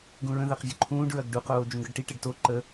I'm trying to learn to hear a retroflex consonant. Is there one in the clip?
yes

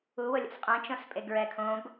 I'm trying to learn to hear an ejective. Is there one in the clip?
yes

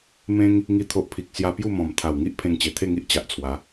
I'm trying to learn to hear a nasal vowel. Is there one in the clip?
yes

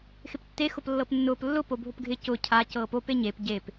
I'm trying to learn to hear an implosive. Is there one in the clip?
no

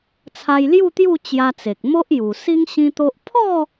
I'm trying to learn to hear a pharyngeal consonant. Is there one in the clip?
no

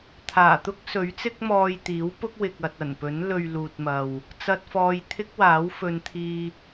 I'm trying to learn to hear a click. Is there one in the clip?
no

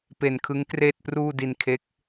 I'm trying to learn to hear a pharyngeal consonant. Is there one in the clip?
no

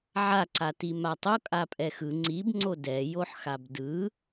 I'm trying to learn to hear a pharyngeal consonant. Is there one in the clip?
yes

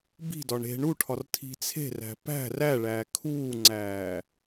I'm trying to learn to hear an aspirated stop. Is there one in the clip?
yes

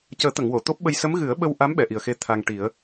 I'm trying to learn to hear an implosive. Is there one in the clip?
yes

